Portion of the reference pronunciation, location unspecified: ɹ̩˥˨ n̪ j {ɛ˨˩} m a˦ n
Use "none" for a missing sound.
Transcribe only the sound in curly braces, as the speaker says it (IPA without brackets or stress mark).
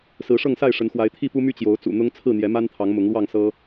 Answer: ɛ˨˦